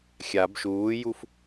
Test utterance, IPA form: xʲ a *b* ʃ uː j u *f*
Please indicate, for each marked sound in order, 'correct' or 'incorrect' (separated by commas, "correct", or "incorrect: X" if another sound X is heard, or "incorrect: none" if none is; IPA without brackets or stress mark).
correct, correct